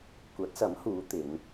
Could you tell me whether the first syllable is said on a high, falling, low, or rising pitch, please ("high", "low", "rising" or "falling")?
rising